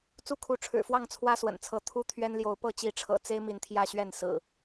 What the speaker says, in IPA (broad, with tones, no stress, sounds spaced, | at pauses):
t͡s u˦ kʰ u˨˦ ʈ͡ʂʰ ɻ̩˨˩ f w ɑ˥˨ ŋ t͡sʰ w ä˦ s w ə̰˨˩ n t͡sʰ ɤ˨˦ t̪ʰ u˦ t̪ʰ ɥ ɛ˦ n l j o˨˦ ʊ̯ p ɤ˥˨ t͡ɕ i˨˦ ʈ͡ʂʰ ɤ̰˨˩ t͡s e˦ ɪ̯ m i˨˦ n t̪ʰ j ä˥˨ ɕ ɥ ɛ˥˨ n s ɹ̩˨˩